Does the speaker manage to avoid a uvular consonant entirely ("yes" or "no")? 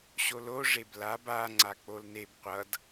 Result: no